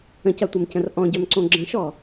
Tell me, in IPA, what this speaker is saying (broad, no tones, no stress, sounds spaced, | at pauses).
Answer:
ə̃ c ɐ tʷ ɐ m c ə̃ r ʔ ɔ̃ ɟ œ m ǀ õ ɡ͡ǁ ə̃ ʃ ɔ